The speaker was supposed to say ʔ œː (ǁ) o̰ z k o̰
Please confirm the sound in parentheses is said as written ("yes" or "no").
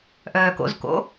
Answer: no